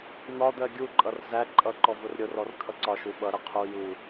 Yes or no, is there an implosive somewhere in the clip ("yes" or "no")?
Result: yes